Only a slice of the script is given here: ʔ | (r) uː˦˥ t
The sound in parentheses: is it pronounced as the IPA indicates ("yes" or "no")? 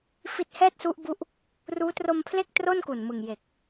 yes